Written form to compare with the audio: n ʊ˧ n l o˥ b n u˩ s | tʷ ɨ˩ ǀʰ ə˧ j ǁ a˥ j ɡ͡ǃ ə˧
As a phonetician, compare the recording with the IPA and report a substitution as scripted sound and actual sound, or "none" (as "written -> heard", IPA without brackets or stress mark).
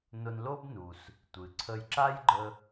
none